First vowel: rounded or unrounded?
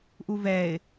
rounded